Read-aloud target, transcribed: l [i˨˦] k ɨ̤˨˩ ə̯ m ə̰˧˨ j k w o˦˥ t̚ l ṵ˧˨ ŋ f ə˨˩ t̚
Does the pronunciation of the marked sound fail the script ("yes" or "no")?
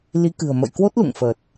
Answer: no